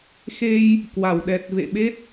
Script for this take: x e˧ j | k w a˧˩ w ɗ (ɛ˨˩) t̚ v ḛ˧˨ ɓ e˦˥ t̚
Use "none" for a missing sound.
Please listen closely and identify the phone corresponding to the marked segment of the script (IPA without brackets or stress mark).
ɛ˨˩